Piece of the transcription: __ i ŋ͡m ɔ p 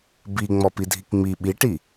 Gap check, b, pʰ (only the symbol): b